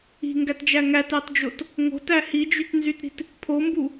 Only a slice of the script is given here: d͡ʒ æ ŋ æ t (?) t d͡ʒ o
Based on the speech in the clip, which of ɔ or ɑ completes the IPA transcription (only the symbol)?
ɑ